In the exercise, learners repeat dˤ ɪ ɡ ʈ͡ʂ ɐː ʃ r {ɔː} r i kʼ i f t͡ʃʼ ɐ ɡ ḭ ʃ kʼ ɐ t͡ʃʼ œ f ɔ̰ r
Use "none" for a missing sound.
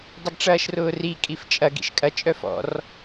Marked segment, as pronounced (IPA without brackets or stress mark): ʊː